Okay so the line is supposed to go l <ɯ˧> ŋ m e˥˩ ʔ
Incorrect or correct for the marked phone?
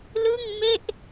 incorrect: ɯ˥˩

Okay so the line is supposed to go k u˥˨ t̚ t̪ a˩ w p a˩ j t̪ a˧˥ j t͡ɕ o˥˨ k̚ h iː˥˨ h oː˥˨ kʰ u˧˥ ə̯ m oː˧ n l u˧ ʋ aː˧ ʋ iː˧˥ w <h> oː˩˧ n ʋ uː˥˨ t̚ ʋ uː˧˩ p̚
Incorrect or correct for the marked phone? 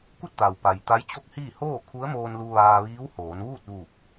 correct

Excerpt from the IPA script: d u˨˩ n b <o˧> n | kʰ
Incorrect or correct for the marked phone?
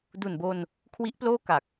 correct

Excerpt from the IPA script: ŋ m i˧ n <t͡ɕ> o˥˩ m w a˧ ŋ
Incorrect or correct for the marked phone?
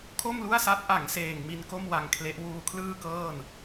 incorrect: k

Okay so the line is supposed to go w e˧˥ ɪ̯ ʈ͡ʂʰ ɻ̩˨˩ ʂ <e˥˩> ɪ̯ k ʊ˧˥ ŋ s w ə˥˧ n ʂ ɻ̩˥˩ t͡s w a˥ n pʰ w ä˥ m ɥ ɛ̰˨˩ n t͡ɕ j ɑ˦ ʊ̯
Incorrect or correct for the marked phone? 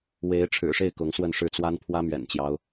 correct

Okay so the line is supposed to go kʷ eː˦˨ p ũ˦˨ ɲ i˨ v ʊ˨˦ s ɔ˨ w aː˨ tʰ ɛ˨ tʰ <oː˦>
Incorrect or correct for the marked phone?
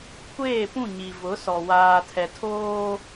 correct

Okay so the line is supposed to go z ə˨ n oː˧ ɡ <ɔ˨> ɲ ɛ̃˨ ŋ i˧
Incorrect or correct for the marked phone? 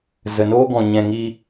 incorrect: ɔ̃˨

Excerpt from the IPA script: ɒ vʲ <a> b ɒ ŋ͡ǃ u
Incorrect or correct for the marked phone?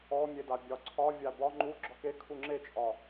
correct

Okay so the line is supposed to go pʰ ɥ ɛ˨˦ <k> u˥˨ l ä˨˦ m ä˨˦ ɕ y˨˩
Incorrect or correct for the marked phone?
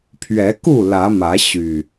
correct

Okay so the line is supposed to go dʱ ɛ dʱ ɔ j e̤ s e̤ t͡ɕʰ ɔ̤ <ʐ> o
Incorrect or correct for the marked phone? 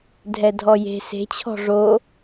correct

